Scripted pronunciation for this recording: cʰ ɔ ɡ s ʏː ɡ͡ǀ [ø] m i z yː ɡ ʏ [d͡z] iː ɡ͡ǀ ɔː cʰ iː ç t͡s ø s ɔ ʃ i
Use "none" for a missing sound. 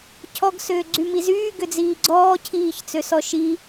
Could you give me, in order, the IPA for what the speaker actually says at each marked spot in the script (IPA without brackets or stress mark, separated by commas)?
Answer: y, d͡z